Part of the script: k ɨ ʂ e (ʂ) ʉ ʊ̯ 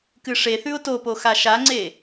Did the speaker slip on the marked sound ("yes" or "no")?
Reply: yes